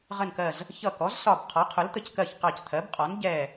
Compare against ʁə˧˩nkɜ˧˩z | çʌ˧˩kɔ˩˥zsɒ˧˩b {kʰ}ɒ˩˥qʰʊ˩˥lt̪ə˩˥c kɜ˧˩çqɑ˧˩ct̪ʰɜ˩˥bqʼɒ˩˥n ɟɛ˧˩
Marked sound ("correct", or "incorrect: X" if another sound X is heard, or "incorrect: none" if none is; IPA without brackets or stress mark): incorrect: qʰ